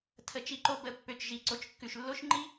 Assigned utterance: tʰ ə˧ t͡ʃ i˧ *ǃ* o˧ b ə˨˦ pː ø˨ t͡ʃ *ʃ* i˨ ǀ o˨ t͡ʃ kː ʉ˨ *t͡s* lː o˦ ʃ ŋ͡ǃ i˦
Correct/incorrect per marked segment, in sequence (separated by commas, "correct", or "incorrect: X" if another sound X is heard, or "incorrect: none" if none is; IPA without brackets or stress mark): correct, incorrect: ʒ, incorrect: ʃ